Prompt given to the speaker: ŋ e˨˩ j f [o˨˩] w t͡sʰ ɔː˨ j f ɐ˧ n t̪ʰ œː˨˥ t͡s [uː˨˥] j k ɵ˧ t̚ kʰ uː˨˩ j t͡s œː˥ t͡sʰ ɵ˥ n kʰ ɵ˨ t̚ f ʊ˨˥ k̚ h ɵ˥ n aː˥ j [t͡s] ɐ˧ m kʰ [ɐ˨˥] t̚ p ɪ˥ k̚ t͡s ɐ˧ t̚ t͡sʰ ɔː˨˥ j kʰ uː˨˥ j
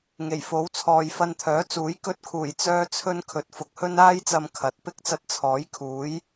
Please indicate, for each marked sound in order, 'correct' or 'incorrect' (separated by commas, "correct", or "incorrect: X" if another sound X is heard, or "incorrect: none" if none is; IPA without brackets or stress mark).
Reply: incorrect: o˨˥, correct, correct, correct